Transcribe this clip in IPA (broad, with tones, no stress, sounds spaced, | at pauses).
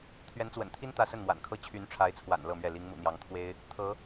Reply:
t̪ʰ ɥ ɛ˧˥ n t͡s w ə̰˨˩ n t̪ʰ i˥ n t̪ ä˥˧ s ə˥˩ n m w a̰˨˩ n kʰ ɤ˥ t͡ɕʰ y˧˥ n ʈ͡ʂʰ a˧˥ ɪ̯ t͡sʰ w a̰˨˩ n l ɤ˥˧ m ɥ ɛ˥˩ l i˧˥ ŋ m ṵ˨˩ n̪ j ɑ˧˥ ŋ t̪ʰ w e˥ ɪ̯ | t̪ʰ ɤ˧˥